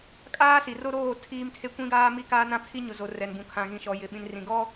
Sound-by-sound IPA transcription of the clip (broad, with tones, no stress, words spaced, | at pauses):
kʼaː˦si˨ro˦ ɾoː˦˨ tʰiː˦mtʰe˦ kʷĩ˦ɡaː˦mi˦kaː˦ nã˦pʰi˦ɲʊ˨zo˨ rɛ˨nbũ˨ kʰã˨ɣĩ˨ʃɔ˨jɪ˨ ɓĩ˨nrĩ˨ɡɔ˦